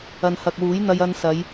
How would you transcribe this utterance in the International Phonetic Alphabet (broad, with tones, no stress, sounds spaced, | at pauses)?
ɐ˨ n h ɐ˨ k̚ w uː˨˥ j n̪ ɐ˧ j ɐ˧ n s ɐ˨˧ j